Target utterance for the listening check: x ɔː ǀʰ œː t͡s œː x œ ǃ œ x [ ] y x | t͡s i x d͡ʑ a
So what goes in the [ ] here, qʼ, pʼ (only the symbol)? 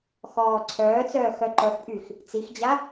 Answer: pʼ